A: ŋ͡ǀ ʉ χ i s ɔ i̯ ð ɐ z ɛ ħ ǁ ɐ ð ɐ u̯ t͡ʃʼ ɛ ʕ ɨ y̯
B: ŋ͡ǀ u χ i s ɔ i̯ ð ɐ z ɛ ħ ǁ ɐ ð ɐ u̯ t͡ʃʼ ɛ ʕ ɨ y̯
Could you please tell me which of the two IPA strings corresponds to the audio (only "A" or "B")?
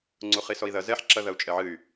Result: B